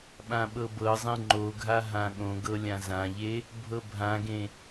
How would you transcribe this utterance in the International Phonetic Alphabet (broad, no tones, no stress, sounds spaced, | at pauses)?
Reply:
ɓ ã ɓ ɤ b ɤ zˤ ẽ ŋ͡ǃ o ɡʱ a ɦ ã ɠ õ ɡ ɤ lʲ ã z ã ʎ e | bʱ ɤ bʱ ã ɡ ẽ